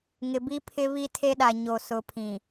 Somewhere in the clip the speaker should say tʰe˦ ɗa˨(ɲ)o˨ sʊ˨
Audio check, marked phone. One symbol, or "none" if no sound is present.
ɲ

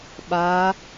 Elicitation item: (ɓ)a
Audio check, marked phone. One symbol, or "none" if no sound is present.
ɓ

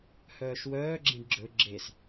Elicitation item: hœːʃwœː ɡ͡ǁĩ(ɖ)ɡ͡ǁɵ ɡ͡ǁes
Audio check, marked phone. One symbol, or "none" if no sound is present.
ɖ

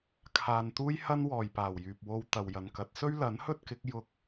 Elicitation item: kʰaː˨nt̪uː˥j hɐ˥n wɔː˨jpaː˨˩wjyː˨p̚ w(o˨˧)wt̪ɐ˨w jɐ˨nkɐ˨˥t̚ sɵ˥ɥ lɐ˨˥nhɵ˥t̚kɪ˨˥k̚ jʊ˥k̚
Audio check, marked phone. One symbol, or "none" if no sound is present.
o˧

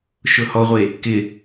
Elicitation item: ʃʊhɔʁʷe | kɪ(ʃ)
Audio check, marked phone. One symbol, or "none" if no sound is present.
none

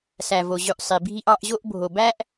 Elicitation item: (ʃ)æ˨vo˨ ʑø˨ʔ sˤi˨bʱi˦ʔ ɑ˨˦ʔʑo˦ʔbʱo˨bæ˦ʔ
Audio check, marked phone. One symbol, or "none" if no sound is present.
s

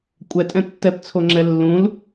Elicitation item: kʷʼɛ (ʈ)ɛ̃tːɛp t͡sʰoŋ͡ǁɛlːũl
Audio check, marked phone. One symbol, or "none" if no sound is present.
tʼ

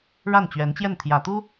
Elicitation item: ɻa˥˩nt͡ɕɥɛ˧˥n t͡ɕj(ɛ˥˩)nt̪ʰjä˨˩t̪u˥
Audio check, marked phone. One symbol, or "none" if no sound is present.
ɛ˥˩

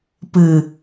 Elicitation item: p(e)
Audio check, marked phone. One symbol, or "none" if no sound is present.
ɨ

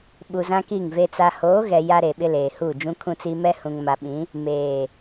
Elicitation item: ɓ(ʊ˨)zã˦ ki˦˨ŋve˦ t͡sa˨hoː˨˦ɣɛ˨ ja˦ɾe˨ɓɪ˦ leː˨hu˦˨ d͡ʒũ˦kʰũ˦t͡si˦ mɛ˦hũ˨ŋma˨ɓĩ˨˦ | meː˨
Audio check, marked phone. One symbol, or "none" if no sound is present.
u˨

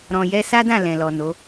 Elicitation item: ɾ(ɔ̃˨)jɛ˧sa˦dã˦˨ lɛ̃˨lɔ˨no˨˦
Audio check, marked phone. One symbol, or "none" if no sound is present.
ɔ̃˨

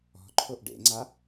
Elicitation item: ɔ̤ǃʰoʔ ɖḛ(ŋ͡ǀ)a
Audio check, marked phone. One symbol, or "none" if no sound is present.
ŋ͡ǀ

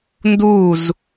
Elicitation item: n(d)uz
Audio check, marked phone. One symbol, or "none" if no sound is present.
d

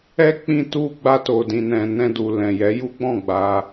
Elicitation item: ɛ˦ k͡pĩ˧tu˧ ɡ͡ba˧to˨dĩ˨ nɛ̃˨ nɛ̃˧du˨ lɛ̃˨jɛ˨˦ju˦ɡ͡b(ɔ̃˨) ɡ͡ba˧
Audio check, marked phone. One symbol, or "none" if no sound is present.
ɔ̃˦˨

